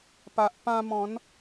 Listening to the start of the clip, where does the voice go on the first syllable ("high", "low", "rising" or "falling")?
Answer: low